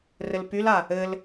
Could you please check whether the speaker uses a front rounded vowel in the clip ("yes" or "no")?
yes